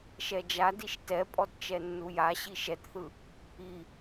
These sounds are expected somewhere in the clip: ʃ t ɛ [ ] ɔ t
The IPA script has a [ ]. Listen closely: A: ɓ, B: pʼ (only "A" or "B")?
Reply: B